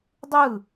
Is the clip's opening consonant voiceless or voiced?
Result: voiced